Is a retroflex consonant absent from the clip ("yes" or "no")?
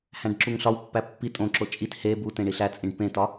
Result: no